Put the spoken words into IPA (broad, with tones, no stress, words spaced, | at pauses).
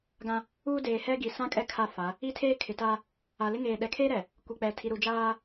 ɡã˦ | uː˦ deː˨hɛ˦ɡi˨ sã˦kʼɛ˦ kʰa˦fa˨˦ | i˦tʰeː˦ kʰɪ˨ta˦ | a˨lɪ˦ŋeː˨ ɗɛ˨kʰe˦ɾɛ˨ | kʷi˨k͡pɛ˨ tʰi˨ɾu˨d͡ʒaː˦